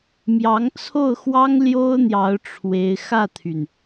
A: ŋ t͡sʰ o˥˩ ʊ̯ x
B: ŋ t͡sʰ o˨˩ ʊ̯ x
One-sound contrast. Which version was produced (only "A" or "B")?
A